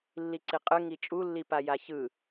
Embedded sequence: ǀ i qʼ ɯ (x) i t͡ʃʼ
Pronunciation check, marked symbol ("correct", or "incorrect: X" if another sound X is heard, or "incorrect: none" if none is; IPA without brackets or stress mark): incorrect: ŋ